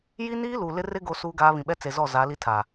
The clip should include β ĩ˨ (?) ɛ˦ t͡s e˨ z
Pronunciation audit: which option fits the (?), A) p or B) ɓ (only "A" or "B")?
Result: B